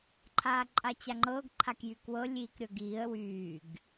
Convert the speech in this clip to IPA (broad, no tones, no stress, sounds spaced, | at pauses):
ǃʰ aː ǃʼ a t͡ɕ a ŋ͡ǃ ɤː ɡ ǃʰ a k j y k w ɤ lʲ iː k ɾʲ ɤ ɡ iː ə̯ w yː ɡ